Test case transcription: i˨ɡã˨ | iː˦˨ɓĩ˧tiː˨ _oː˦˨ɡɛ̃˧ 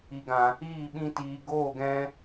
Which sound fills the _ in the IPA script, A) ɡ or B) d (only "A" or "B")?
A